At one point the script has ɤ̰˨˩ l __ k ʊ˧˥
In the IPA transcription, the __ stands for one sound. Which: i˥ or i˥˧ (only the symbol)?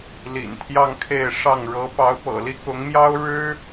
i˥